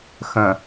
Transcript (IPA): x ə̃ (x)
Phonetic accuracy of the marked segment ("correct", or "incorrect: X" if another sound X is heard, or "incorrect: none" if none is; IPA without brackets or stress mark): incorrect: none